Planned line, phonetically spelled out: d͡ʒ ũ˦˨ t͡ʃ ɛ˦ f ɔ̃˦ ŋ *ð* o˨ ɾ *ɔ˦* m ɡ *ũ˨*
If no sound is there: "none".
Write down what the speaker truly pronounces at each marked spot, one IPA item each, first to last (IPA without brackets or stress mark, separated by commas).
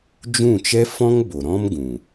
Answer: b, ɔ̃˦, ũ˨